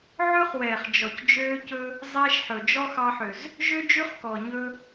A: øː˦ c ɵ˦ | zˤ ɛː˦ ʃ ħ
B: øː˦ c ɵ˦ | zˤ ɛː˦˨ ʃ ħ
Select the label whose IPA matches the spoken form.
A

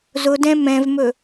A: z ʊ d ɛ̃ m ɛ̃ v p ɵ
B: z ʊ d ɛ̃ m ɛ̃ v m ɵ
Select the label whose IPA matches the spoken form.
B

